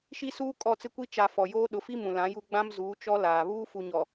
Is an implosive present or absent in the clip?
present